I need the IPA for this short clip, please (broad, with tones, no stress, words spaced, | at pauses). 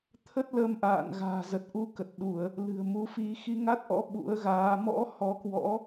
t̪ʰə˦˥t̚lə˧mʔa̰ː˧˨n ɣa̤ː˨˩zə˨˩t̚ʔu˨˦ kə˨˩t̚ɗu˧˩˨ə̯ | lɨ̤˨˩ə̯mu˨˦fi˧ xi˧ŋa˦˥t̚ʔɔ̰˧˥ ɓṵ˧˥ə̯ɣaː˨˦ mɔ̰˧˥ hɔ˨˦kwɔ̰˧˥